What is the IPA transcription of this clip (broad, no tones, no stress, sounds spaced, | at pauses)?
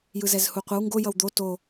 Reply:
j ɯ z ɛ z h u qʷ ʌ w ŋ ɡ o j ʌ w d̪ o t o